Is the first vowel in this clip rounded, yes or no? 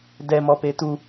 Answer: no